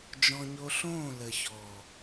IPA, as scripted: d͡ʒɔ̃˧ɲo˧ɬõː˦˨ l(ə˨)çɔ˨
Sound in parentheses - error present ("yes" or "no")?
no